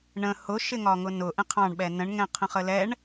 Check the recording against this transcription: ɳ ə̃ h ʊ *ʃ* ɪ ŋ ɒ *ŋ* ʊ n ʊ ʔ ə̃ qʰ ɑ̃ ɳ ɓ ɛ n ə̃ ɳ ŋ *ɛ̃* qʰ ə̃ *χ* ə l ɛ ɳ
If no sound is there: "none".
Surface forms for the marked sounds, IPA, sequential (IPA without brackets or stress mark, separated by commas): ʃ, ŋ, ɛ̃, χ